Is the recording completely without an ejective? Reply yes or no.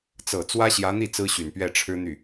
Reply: yes